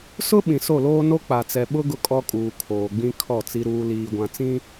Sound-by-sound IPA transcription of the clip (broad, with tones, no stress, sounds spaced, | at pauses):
s ʊ˦ ɓ ĩ˨ s o˦˨ l oː˦ n o˦ k͡p a˨ t͡s ɛ˨ ɓ ʊ˦ ɡ ʊ˦ kʼ ɔ˦ kʼ uː˨ kʰ oː˨ ɡ͡b ĩ˦ kʰ ɔ˦˨ t͡s i˦ ɾ uː˦ l iː˨ ɡʷ ã˨ t͡s ĩ˦